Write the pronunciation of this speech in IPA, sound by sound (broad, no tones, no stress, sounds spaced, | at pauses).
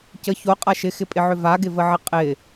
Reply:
c ə ç o qʼ a ʃ ɪ x ɪ pʼ ɪ ʕ ʏ v a ɡ ɪ v ə ʕ ɪ qʼ ɪ